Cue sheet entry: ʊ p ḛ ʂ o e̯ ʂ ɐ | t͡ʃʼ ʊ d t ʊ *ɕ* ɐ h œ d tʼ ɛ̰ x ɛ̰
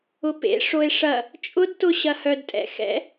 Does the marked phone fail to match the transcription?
no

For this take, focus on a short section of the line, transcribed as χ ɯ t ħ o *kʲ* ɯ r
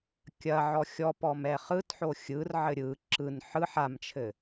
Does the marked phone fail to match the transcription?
yes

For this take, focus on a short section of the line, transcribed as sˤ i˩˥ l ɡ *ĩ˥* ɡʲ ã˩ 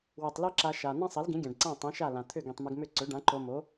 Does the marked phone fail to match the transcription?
yes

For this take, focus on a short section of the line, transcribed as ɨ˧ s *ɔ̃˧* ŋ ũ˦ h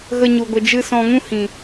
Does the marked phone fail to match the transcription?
no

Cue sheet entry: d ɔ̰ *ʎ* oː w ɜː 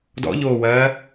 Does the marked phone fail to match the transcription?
no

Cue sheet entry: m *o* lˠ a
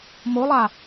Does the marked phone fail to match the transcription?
no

